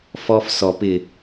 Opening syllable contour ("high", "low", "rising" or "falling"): high